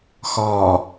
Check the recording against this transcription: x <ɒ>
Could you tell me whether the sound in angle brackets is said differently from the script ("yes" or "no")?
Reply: no